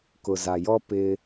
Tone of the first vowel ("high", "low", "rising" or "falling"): low